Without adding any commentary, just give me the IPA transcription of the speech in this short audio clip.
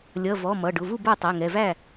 lʲʌ˩˧˩ vɔ˩˧˩ mʌ˩˧˩ɖʊ˩˧˩vu˥˩bə˞˥˩ tˤɛ˩˧˩ŋɛ˩˧˩væ˥˩

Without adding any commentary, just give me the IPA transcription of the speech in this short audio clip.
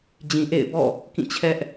d͡ʑĩ˨ ʔḛ˦˨ɪ̯bɔ̰˦˨ | kĩ˦˨t͡ɕʰɛ˦ʔ

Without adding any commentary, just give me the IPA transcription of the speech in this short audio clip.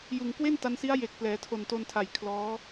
jɯ˨˩ŋ kwe˥˩nta˧nsi˦˥a̯ je˨˩k̚ plɛː˩˦tʰo˨˩nto˧ntʰa˨˩j kʰlɔː˦˥

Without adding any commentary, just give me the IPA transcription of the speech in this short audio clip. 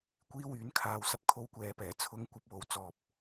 kʷiː˧ wyː˨˥nkʰaː˧w sɐ˨p̚kʰo˧wkʷɛː˨pɛː˨˩ t͡sʰʊ˨˧ŋ kʷɐ˨˥p̚wo˨wt͡sɔː˨p̚

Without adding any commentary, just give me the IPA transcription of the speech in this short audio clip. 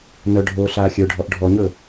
nœ ɖʱoːɬaːxʲə˞ɖʱɔʔ ɖʱɔɲɵ

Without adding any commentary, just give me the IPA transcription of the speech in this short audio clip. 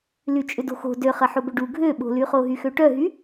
lyt͡ʃʼʏdo̤xo̤ dø χɐħobʏɖu ɡʱøɓo̤lyχo ɦyxøʈœɦy

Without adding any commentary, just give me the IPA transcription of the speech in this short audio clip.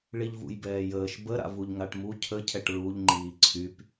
ɭiʎvṵjbɛːjəːʃ bə ɾa̰vuʎŋaʈmu cʰə cʰɛʈɹuʎ ŋ͡ǃiːǀʰyp

